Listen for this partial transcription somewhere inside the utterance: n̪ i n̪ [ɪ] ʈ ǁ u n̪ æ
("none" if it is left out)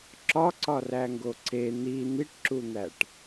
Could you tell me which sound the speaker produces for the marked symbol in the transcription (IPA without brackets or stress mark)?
i